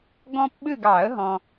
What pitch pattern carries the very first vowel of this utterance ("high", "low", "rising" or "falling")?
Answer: high